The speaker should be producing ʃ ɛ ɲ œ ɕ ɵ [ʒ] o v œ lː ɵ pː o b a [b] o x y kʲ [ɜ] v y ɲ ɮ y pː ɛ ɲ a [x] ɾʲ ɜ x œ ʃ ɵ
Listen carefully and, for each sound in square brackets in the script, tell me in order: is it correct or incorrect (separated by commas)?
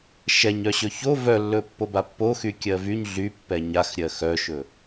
incorrect, incorrect, correct, correct